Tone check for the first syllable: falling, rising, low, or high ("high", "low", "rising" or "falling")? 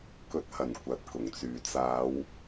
low